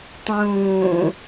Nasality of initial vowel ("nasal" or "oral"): nasal